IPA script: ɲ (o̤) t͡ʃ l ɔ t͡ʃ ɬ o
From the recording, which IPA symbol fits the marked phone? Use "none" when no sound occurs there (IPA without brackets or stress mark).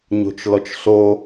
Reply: o̤